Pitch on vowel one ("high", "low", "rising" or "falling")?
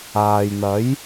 low